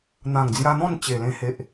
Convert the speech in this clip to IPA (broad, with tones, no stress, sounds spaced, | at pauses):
n̪ ã˨˩ ŋ d͡z j a˧ n̪ ɔ̃˥˧ n t͡ɕ e˨˩ l ẽ˧ h e˨ ʔ